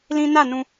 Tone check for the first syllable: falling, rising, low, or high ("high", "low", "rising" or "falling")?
high